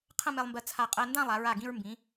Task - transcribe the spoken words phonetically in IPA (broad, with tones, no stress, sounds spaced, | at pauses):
qʰ ə̃˥˧ m e˧ lˠ m b ɜ˧ t͡sʰ a˧˩ qʼ ɜ˧ n d ã˥˧ lˠ a˩˧ ɹ a˧˩ ɡ ĩ˧ ɹ m b ĩ˩˧